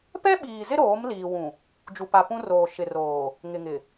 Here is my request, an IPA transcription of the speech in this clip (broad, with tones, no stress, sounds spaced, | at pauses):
p ɛ˦ ɓ iː˨ z ɪ˦ ɾ oː˨˦ m l iː˨ w ũ˨ | d͡ʒ u˨ p a˨ p ũ˦ r oː˨ ʃ ɪ˨ r oː˨ | ŋ ɪ˨ ŋ ɪ˨